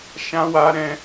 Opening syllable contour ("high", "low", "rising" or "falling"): high